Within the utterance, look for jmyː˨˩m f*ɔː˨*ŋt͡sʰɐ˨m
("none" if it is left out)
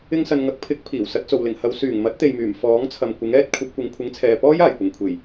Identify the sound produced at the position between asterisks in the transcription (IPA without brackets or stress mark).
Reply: ɔː˨˥